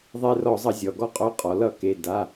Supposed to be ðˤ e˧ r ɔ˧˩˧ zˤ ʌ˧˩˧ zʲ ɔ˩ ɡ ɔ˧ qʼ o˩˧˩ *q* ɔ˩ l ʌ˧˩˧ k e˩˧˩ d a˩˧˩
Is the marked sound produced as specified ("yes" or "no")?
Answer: no